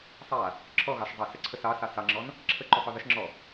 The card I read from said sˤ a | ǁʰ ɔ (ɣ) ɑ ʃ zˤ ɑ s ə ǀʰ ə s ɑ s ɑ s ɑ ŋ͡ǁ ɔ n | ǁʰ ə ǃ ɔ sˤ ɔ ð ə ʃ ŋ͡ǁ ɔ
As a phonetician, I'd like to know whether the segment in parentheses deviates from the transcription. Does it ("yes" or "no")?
no